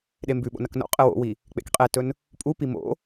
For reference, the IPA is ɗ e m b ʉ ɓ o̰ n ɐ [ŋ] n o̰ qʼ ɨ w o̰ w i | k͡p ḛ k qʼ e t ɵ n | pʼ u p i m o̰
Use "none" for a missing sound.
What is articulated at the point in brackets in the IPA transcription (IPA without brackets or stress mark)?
k